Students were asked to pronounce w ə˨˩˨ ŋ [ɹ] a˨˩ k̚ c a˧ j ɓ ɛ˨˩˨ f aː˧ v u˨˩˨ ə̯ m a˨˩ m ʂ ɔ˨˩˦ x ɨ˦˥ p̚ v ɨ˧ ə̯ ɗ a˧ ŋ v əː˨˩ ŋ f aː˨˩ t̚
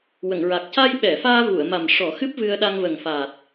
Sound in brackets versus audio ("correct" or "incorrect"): correct